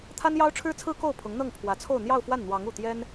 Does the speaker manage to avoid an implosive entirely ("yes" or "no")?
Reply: yes